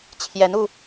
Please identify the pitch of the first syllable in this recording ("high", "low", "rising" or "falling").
rising